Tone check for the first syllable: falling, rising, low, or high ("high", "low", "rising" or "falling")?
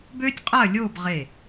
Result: high